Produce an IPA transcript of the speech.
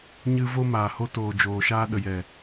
ɲɨ˧ vo˧maː˨ho˧toː˨ d͡ʒoː˨ʃaː˧ ɗə˨jɛ˨

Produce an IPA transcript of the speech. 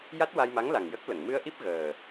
ja˦˥t̚wa˧jma˧˥ŋla˨˩ŋ jə˦˥k̚lə˨˩˨ŋ mɨ˧ə̯ʔi˦˥p̚ ɣəː˨˩

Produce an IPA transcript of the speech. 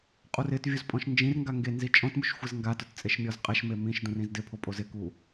qʼurɪtvʲuz pʼɔ̃ʃnd͡ʒĩrŋɡa ŋɡenzi t͡ʃʼɔ̃tmuʃ xʷɪzŋɡatʊt t͡sʼeʃmʲɔzqʼɛʃme mĩʃdũr ĩzdɪpʰo pʼozɪku

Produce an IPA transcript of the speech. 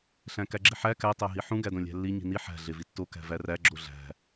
ɬæ̃kæɡ͡ǁiħæ kæ tˤæɦiħũ ɡædõlʲæ̤lːi ɲi̤ni ħæ̤ ɮevitːo kæ̤væræ ɡ͡ǁoɮæ̤

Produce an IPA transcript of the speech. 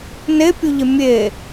nepʲuʎɪ mʲe

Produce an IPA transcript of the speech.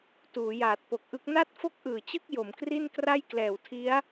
tuː˩˦jaː˨˩t̚po˨˩k̚ʔɯ˦˥k̚ na˥˩t̚fo˥˩k̚ʔɯː˨˩t͡ɕɯ˥˩k̚ jo˩˦mkri˥˩n kra˥˩jklɛː˨˩wtʰi˦˥a̯

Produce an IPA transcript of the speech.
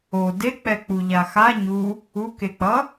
o dek͡pɛ k͡puʎaxa ɲu | ukek͡pʌ

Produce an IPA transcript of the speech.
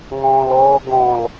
ŋɔ̃ːlɔːɡɔ̃l

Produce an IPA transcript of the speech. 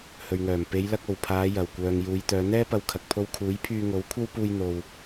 hɵ˨ɥŋœː˨˩m pe˨˧jlɐ˧k̚ o˨˩wpʰaː˨˧ jɐ˨˩wkʷœː˨ŋ juː˨˧jt̪œː˨˧ n̪ɛː˥ pɐ˧wkʰɐ˨k̚ pʰo˧wkʰuː˨˥j pʰyː˧ŋo˨˥w kʷʰɐ˥wpuː˧j n̪o˨w

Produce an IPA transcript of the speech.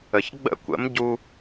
ə˩ç ɡ͡bə̰˥˩kʷə̰˩˥m ɟu˧

